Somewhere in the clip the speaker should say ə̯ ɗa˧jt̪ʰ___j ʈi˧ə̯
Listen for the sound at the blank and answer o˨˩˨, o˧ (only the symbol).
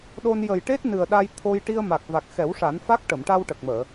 o˧